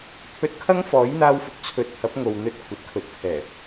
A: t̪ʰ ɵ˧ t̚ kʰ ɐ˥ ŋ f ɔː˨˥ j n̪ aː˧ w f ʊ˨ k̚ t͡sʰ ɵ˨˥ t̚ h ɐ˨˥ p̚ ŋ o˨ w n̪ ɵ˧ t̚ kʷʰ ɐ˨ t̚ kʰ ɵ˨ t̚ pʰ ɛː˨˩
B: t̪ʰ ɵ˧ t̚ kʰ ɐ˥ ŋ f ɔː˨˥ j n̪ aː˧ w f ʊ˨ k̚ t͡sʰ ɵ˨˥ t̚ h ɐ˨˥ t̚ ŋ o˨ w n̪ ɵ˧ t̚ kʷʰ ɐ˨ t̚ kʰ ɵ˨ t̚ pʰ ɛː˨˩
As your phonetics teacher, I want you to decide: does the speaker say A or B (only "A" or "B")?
A